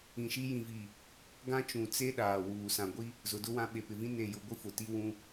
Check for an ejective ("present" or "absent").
absent